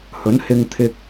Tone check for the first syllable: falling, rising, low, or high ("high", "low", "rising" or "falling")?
rising